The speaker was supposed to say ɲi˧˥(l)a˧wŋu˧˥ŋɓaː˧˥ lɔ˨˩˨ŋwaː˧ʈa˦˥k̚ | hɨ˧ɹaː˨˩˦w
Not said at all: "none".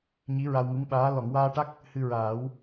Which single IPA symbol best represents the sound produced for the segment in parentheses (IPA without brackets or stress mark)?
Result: ɹ